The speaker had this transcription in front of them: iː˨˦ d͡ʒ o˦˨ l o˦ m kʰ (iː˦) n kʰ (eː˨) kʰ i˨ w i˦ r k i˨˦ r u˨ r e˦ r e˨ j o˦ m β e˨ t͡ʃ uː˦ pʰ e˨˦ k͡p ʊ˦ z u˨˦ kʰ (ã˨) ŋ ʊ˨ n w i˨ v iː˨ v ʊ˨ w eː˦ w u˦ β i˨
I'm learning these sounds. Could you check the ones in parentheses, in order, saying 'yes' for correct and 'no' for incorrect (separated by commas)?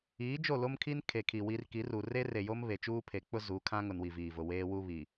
no, no, no